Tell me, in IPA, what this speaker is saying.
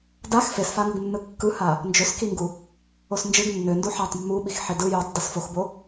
dax fesfaŋɯɡ nːɯkːɯha | nd͡ʒøskiŋɡu | osnd͡ʒɯɡ nːøndu ħatˤ mːuɓixħe dɯ jutˤ dɯsfoxbo

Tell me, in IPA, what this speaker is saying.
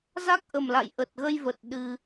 za˦˥k̚ʔə˨˩mla̰˧˨j ʔə˨˩t̚ɣə˧j və˨˩t̚ ɗɨ˧

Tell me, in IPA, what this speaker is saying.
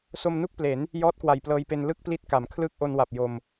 so˧mnu˥˩k̚ple˩˦n | jɔː˦˥t̚kwa˨˩jplɤː˧jpe˧n lɯ˥˩k̚pli˦˥t̚ka˩˦m kʰlɯː˦˥k̚ʔo˧nwa˨˩p̚ jo˧m

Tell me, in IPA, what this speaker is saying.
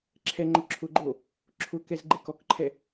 ǁʰɛŋ͡ǃʊ ǁʰʊɡ͡ǃo | ǁʰʊkɛz ɡ͡ǃekɔkǃʰɛ

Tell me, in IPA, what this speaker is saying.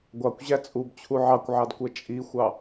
ɡʷɑkʷʑæ t͡sʼubt͡ɕʰu ʕɑkʷʕɑdkʷɜ t͡ʃʼixʷɑ

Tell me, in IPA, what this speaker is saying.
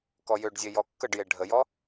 kɔjøɖzʲe jɔkːəɖje ɖʱəjɔ

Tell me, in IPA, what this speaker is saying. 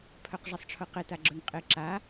pʰœqʐɛsˤʈ͡ʂʰʊqɪ taɡ͡ǁœŋqʼɪ ǁa

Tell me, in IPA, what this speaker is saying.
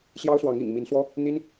ɕjɑ˦ʊ̯swɑ˨˦ŋḭ˨˩ŋ mi˨˦nswɔ˦ | n̪i˦n

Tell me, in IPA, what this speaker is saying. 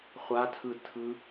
χʷatʰɯtʰɯ

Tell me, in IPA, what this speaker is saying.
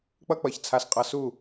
k͡pʌ˦k͡pʌ˨ç t͡sʰa˧sqʼʌ˧ su˦˨

